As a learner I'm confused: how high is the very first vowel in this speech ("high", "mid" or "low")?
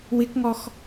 high